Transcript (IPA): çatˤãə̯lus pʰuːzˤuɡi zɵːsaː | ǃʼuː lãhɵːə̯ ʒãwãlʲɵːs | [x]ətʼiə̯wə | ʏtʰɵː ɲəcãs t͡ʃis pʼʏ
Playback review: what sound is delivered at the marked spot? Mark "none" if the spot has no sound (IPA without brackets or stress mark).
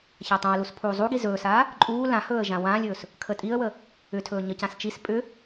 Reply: kʰ